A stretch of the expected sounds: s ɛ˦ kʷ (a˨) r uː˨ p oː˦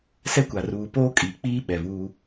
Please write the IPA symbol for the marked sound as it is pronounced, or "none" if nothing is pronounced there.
a˨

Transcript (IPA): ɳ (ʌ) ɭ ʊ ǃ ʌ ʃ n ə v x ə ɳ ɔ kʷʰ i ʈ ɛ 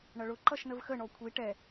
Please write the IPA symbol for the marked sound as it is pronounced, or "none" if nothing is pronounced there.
ʌ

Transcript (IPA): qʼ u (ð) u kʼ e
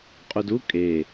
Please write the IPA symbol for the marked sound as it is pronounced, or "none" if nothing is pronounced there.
d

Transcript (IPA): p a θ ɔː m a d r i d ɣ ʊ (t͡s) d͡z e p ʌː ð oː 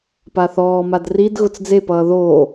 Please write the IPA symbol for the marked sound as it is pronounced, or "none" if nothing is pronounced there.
t͡s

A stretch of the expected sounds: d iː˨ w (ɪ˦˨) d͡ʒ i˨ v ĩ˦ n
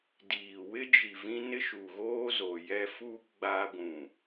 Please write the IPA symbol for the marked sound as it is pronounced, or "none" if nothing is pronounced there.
ɪ˦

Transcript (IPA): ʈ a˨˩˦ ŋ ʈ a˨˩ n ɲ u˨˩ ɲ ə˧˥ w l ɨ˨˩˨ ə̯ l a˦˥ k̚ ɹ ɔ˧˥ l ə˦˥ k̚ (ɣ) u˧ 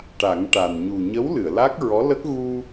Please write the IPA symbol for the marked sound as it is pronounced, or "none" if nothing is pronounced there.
ɣ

